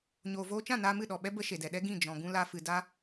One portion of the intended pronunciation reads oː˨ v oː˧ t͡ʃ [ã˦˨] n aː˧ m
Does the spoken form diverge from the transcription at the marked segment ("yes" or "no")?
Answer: no